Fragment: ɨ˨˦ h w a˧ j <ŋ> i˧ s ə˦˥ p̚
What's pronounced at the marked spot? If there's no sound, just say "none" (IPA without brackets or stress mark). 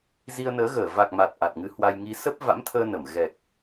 ŋ